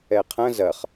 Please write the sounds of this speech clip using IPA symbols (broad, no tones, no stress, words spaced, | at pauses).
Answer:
ɛqʰɐ̃ zɐχ